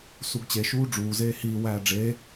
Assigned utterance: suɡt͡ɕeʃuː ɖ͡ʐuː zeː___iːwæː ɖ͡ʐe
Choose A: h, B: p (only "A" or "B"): A